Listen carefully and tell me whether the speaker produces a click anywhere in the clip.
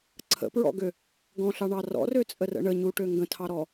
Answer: yes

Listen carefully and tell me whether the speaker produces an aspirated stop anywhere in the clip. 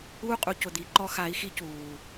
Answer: no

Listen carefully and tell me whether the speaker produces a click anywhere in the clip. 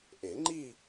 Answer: yes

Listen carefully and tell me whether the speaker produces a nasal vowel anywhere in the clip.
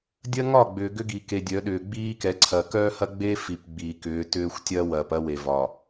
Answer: no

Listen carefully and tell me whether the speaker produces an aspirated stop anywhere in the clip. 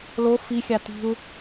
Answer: no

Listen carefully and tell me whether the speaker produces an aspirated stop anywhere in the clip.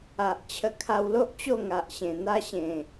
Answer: yes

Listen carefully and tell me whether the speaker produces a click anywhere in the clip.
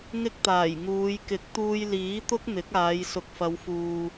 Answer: no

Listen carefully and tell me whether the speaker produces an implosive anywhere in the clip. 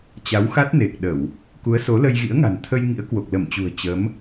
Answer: yes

